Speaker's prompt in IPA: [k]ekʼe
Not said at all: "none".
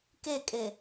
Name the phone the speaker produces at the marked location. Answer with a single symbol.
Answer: k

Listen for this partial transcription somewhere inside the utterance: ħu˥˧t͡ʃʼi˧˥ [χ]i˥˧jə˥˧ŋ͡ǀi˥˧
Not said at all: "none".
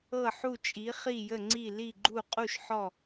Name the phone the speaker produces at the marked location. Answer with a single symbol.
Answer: χ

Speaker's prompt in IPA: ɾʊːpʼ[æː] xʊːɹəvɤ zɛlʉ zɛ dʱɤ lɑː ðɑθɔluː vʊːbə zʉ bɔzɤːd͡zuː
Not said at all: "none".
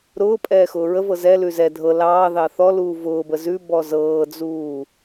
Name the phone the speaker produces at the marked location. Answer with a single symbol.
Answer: ɛː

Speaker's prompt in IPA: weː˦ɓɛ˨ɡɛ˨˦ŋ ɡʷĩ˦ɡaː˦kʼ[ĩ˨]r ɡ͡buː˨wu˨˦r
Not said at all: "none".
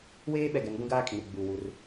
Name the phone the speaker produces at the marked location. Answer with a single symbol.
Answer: ĩ˨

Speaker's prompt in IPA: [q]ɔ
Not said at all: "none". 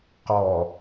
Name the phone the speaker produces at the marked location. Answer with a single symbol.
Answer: q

